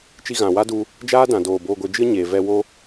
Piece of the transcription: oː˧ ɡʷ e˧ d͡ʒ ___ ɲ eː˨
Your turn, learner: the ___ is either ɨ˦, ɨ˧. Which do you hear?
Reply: ɨ˦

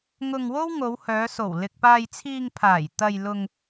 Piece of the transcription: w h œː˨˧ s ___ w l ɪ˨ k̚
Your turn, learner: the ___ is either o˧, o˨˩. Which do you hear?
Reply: o˨˩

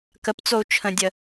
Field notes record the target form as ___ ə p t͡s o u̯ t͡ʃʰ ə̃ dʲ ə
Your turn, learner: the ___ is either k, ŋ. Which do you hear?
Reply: k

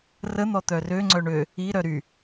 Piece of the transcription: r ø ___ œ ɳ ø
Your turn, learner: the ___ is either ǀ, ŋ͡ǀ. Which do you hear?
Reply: ŋ͡ǀ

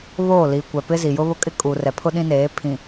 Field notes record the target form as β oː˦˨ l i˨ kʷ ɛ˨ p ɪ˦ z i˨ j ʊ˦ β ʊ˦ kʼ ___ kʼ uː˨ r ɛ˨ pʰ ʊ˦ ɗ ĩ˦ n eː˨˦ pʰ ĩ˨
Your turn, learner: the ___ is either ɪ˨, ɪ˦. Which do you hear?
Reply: ɪ˦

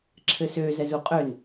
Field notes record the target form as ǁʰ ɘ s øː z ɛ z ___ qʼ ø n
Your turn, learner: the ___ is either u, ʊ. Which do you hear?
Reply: u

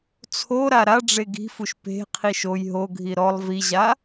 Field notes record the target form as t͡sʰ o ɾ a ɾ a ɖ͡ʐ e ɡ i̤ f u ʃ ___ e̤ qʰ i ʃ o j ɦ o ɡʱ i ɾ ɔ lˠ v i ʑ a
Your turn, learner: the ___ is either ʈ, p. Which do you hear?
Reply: p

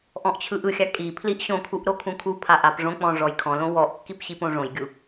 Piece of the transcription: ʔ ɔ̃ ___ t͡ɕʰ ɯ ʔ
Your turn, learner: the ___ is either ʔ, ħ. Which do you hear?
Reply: ʔ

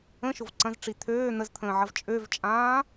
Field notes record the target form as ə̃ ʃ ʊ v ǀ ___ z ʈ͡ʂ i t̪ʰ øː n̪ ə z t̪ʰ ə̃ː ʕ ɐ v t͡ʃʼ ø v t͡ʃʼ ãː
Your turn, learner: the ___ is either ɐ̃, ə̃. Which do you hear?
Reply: ɐ̃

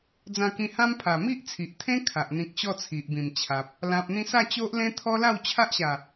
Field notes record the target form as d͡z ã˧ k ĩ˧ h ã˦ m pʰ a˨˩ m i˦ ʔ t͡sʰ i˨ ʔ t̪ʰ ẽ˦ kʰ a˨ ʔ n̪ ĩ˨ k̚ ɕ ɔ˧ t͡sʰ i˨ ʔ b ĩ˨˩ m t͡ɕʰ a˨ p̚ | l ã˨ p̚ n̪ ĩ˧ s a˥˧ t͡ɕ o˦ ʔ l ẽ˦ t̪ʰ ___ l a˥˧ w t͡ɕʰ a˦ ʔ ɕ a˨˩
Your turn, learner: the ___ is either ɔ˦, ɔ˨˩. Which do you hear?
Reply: ɔ˦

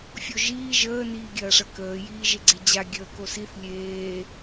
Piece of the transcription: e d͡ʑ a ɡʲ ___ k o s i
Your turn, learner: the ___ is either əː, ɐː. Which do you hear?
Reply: əː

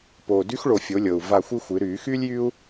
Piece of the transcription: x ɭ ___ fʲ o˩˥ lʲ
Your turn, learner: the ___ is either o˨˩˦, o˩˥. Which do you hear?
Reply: o˨˩˦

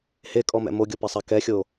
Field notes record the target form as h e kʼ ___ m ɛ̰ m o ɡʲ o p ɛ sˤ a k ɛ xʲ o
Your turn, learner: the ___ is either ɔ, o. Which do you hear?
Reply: ɔ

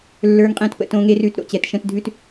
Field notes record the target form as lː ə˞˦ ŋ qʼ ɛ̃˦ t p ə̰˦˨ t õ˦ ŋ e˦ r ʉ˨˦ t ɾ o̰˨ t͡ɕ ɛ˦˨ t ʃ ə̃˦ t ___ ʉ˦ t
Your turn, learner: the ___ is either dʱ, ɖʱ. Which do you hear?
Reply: dʱ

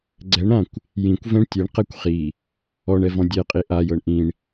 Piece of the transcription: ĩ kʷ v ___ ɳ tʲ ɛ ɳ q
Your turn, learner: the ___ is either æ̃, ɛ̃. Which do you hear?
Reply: ɛ̃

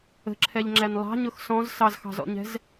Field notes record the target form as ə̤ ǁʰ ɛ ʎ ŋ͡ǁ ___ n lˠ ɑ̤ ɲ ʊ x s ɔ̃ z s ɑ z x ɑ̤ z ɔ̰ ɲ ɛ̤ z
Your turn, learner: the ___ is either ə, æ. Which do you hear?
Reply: æ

